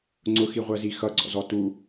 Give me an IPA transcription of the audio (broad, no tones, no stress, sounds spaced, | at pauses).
ŋ͡ǀ ʊ x i ʁʷ ɜ z i x ʌ ɡ͡ǀ ɔ̰ z ɔ t u